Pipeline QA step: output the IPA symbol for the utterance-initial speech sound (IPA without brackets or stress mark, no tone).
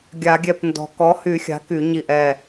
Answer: ɡʲ